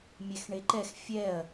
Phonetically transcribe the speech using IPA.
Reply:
mʲ ɛ x ɳ e ǃ ɛ x fʲ ɛ ɐ̯

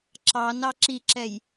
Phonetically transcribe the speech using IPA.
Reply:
ǁ ɑ n ɑ ǁ i ǁ ɛ j

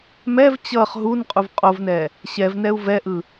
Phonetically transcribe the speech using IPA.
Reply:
m ɛ v t͡ɕ ʌ χ ɦ u n qʼ u v qʼ o v n ɛ | ɕ ɛ v n ɛ u̯ v ɛ ʔ ɯ

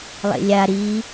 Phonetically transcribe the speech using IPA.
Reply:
lˠ ḛ lʲ a ɾ i

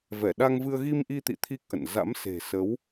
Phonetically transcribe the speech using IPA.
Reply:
v ɛ˧˩ ɗ a˧ ŋ v ɨ˧ ə̯ ɣ i˧ m ʔ i˧ t̪ ḭ˧˨ t̪ʰ i˦˥ k̚ ʔ ə̰˧˨ n z a̰˧˥ m s e̤˨˩ s ə˨˦ w

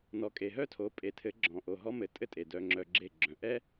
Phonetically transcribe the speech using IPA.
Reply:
n ɔ˨ kʼ e˨ ɦ œ˦ tʰ o˨˦ pʼ e˨ tʰ ɘ˨˦ ɡ͡ǁ ɔ̃˨ ʔ o˨ ɦ ɔ˧ m ɘ˨ tʼ ɘ˦ tʼ e˨ d œ˧ ŋ͡ǁ œ˧ ɡ͡ǁ e˦˨ ɡ͡ǁ œ̃˨ ʔ ɛ˦

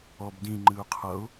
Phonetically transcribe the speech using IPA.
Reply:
ɔ b d ĩ ŋ͡ǃ ɨ ʊ̯ qʰ ʌ ʊ̯

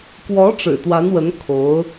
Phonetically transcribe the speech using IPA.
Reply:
k w ɔ˧˥ ʈ͡ʂ ɻ̩˨˩ t̪ w a˧˥ n w ə˧˥ n kʰ o˧˥ ʊ̯

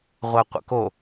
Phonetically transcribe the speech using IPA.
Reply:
ʁʷ ɜ qʷ ə̰ k o

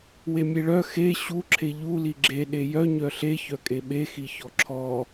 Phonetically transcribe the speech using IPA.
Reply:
w e mʲ e ɭ œ x e ɕ u ǁʰ e ʎ u l i ɡ͡ǁ e ɗ e j œ ɲ œ ɬ e ç œ kʼ e ɓ e x i ç ɔ ǁʰ ɔ

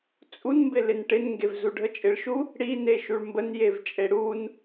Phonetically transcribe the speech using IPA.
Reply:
t͡sʼ u n m b ɪ l ɪ n ʈ ɪ n ŋ ɡ e v z u ɖʱ ə t͡ʃʼ ɪ ɭ ʃ u | ɽ i n e ʃ u ɭ m b ə n j e v t͡ʃʼ e ɽ u n

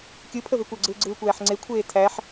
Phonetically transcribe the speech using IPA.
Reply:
kʲ ɯ pʰ ə v e kʷ ɐ ɡ͡ǀ ɯː ɡ͡ǀ ɯː kʷ æː ħ ŋ͡ǀ e kʷʰ eː tʰ æ ħ

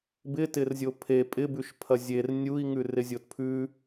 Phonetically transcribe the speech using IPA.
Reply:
b ɪ t ɪ r zʲ o pʰ e pʼ ɪ b ʉ ʃ pʰ ɐ zʲ e r nʲ u i̯ ŋ ʉ r ɪ zʲ o t pʰ ʉ

